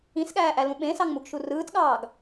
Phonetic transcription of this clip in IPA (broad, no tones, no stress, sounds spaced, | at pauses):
ĩ s ɠ æː ʔ æ l ũ ɓ ẽ s ɑ ŋ m u ɡ ʃ u r ɯː t ɠ ɑː ɡ